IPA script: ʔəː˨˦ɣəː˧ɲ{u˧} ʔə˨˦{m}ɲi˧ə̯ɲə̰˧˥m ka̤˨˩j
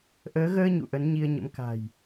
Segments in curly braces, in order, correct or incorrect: incorrect: ṵ˧˨, incorrect: n

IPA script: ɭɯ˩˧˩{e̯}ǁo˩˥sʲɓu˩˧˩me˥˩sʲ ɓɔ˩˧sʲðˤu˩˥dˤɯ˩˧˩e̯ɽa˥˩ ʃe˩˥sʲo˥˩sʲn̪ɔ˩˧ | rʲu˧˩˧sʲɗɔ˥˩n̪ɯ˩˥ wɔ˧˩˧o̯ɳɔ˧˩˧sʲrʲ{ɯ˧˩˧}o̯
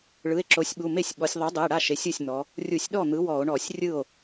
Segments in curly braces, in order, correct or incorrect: correct, incorrect: ɯ˥˩

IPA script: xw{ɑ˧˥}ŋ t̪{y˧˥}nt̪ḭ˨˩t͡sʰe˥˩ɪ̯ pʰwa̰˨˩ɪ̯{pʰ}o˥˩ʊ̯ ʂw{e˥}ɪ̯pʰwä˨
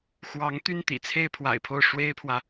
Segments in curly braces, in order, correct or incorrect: correct, incorrect: y˥˩, correct, correct

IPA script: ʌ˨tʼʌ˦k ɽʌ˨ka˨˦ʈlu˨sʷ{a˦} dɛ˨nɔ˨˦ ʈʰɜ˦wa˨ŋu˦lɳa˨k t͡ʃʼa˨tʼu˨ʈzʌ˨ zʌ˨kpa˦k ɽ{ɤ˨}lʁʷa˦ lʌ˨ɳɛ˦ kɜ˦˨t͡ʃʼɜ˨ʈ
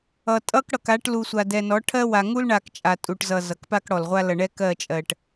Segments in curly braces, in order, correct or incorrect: incorrect: a˨, incorrect: ɔ˨

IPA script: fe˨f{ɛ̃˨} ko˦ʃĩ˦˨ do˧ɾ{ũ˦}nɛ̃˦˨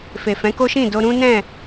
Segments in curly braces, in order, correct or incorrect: incorrect: ɛ̃˨˦, correct

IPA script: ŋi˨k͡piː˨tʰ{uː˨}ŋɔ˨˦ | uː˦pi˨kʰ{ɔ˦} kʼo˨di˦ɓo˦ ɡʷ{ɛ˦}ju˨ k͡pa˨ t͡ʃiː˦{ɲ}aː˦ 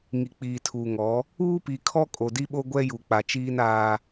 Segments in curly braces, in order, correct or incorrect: correct, correct, correct, incorrect: n

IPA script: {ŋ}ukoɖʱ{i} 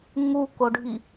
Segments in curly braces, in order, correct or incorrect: correct, correct

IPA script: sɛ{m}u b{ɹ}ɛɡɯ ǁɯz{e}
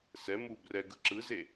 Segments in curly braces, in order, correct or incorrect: correct, incorrect: r, correct

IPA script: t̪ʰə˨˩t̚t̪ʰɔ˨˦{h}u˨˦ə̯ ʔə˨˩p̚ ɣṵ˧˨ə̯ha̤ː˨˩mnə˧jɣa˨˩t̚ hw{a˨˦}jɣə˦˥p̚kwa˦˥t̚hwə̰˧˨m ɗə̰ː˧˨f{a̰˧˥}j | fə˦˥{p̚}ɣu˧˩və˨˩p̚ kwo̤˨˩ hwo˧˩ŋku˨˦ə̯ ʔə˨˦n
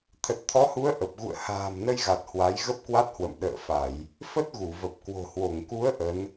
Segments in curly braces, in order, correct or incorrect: correct, correct, incorrect: a˧˩˨, incorrect: t̚

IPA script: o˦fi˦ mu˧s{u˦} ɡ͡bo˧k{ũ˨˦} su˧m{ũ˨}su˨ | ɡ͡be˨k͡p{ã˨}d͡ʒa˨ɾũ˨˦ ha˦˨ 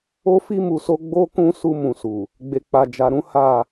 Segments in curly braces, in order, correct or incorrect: incorrect: o˦, incorrect: ũ˧, correct, incorrect: a˨

